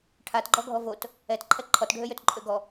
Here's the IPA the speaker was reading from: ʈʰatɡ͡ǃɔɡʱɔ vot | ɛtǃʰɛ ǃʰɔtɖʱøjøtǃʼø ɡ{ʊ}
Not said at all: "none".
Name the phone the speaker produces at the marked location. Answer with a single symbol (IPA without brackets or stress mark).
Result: ɔ